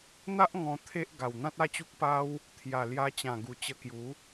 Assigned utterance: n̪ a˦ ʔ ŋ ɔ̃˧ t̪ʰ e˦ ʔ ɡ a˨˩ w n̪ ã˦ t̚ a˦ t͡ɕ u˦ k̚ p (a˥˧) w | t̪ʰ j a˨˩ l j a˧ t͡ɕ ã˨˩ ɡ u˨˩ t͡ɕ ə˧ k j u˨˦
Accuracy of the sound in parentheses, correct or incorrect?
incorrect